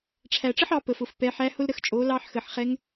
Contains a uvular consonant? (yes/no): yes